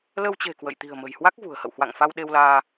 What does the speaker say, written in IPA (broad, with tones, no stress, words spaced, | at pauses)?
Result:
lə˧wt͡ɕe̤˨˩ kwə̰˧˨j t̪i̤˨˩ə̯mə̤˨˩jhwa˦˥k̚ vṳ˨˩ə̯hə̰˧˨w hwa̰˧˨ŋfa˧wɗe˧wlaː˧